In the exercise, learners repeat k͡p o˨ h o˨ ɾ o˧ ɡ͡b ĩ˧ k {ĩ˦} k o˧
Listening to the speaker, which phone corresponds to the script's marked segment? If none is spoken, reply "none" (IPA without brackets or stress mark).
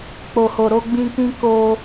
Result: ĩ˦